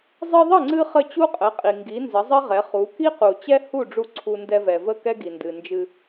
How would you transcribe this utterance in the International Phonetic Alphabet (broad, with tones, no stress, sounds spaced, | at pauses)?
zˤ ɨ˧ ðˤ ə˥˩ ŋ͡ǀ ɨ˧ χ ə˥˩ t͡ɕ u˥ qʼ ə˩˥ qʼ i˩ ŋ ɡ i˩˥ n z ə˩˥ zˤ ə˥ ʁ ɛ˩˥ χ u˩˥ k i˥ q u˩ t͡ɕ ɛ˥ h u˥˩ ɖ͡ʐ u˧ ǀʰ u˧ n d ɛ˧ v ɛ˩ v ə˥˩ k ɛ˥ ɡ i˩ n d ɨ˩ n d͡ʒ ɨ˧